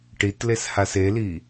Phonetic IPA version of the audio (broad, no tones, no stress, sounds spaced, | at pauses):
ʈ i t l e s h a s e l i